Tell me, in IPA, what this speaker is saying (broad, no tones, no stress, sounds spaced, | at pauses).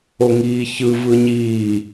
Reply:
o ŋ iː ç ɯ v ɯ ɲ iː